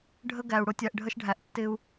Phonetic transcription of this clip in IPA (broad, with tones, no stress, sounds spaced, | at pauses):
ɖʱ ə˦ ɡ æ˨ u̯ ɽ ʊ˦ tʲ æ˨ ʔ ɖʱ ə˦ ʃ ɖʱ æ˨ ʔ tː ɪ˦ u̯